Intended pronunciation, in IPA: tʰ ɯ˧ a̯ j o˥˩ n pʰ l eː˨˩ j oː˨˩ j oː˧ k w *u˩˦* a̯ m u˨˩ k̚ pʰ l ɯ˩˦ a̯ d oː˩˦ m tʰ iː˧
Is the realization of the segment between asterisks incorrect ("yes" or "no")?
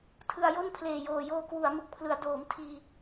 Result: no